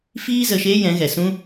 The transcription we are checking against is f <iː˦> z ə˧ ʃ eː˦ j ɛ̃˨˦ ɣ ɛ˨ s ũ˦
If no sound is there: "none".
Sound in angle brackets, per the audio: iː˦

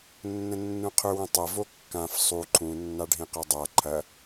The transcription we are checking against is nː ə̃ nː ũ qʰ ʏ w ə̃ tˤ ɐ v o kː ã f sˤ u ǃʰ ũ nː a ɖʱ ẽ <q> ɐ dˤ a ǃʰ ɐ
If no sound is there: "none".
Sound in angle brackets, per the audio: q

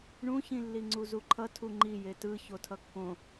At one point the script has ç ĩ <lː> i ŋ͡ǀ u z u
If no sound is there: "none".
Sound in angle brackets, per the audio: lː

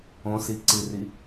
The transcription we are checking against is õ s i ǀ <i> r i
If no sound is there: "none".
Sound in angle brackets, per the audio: i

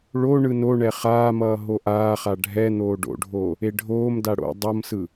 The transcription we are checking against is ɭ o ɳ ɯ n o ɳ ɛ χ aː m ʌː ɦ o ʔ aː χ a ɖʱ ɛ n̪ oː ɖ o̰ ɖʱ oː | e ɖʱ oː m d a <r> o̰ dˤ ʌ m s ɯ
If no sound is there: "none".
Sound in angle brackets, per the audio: ɽ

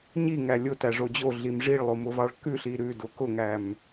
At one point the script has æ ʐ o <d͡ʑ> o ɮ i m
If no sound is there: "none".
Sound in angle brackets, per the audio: d͡ʑ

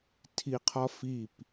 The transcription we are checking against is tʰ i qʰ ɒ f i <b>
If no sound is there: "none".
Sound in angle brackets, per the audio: p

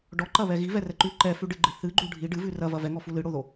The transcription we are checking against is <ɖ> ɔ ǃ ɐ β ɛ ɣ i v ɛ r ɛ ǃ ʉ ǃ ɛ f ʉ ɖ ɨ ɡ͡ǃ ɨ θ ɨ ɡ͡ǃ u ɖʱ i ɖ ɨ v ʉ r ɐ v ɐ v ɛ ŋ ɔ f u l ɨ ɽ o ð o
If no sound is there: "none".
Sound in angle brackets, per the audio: ɖ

